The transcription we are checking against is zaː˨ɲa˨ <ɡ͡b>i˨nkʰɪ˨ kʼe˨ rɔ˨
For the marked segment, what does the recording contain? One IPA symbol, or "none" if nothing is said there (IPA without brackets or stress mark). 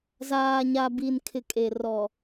b